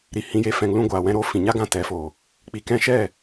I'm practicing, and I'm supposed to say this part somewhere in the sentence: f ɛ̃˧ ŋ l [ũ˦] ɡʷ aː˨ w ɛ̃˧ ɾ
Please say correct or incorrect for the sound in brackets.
correct